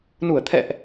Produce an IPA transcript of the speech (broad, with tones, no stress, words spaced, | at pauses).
nu˧˩ə̯t̪ʰɛ̰˧˨ʔ